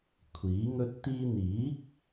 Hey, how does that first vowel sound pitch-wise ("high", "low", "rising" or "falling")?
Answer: rising